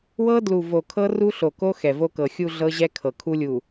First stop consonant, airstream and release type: plain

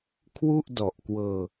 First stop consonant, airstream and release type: aspirated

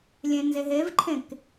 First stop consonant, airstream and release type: click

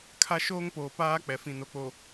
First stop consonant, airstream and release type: aspirated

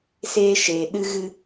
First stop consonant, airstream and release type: implosive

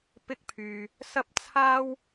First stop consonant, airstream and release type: plain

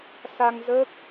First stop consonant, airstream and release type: plain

